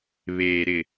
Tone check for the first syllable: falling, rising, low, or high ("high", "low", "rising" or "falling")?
low